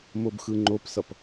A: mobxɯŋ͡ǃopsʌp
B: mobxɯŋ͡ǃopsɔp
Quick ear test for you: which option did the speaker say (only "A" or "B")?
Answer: A